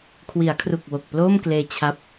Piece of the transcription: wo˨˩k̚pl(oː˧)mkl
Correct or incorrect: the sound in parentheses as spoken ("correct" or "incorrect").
incorrect